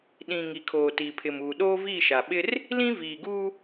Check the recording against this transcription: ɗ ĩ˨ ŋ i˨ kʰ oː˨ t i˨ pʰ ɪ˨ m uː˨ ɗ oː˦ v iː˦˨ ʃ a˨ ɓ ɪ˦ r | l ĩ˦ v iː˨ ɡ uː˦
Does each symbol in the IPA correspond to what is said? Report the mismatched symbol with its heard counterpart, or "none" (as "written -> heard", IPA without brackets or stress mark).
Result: none